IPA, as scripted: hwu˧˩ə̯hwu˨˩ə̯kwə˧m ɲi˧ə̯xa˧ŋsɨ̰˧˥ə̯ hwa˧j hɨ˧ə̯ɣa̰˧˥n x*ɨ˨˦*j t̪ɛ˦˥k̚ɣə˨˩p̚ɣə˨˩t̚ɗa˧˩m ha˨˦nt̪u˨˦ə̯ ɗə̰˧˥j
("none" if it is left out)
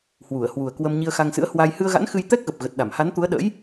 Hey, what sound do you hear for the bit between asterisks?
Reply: ɨ˧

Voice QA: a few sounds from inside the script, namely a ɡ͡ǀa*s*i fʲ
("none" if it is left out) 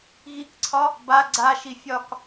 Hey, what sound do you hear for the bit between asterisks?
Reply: ʃ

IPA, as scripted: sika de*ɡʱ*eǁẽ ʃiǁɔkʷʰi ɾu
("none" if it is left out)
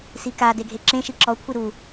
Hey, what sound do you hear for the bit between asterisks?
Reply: ɡʱ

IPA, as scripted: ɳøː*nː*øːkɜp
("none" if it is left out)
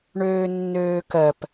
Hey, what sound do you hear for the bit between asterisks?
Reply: nː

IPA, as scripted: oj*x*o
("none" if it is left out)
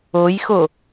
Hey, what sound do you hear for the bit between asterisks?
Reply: x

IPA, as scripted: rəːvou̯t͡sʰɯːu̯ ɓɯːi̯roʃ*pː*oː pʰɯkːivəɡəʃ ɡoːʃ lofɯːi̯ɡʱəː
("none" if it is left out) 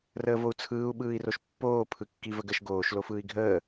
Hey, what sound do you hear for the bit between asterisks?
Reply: pː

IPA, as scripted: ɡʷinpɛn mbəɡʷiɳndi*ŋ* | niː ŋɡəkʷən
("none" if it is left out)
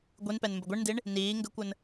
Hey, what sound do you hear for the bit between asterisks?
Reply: ɳ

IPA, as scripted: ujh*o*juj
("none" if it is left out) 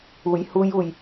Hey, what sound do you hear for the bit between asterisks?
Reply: u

